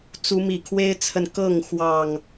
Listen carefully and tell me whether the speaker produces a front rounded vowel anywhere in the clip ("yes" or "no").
no